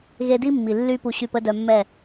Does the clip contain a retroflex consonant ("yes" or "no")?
no